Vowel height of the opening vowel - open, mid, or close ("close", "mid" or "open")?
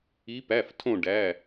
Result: close